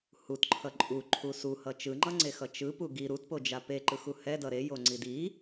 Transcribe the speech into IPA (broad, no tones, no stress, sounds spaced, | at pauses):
h u t ǃʰ ʌ ǃʼ u ǃʰ u s u h ʌ t͡ʃ ɯ ŋ͡ǃ ʌ ŋ͡ǀ e x ʌ t͡ʃ ɯ p u ɡ i ɾ u t p o d͡ʒ a p e ǃ ɯ x u h ɛ d ʌ ɾ e j o ŋ͡ǀ i d i